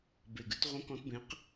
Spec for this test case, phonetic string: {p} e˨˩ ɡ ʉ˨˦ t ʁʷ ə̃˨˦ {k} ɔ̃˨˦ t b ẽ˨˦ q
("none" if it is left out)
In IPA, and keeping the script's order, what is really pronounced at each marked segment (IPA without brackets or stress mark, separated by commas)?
b, k